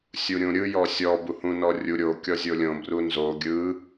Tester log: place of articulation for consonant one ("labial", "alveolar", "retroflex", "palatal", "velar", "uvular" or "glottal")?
alveolar